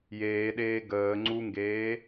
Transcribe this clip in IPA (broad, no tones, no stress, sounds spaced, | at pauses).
j eː ɗ eː ɡ əː ŋ͡ǀ u ŋ ɡ eː